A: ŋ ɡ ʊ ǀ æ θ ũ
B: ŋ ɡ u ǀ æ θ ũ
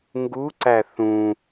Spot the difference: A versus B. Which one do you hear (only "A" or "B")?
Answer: B